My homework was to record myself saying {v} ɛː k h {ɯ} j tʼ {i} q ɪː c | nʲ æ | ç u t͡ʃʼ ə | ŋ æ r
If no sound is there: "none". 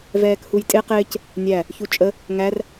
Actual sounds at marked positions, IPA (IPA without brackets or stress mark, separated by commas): v, u, ɪ